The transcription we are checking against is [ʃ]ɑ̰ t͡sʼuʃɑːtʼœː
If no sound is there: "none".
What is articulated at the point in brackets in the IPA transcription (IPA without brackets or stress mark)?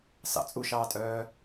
s